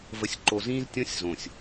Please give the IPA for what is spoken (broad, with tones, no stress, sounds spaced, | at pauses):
v ə˨ sʲ ǃ o˨ z ĩː˦ z tʲ ɔ̃˦ sʲ z õ˨ sʲ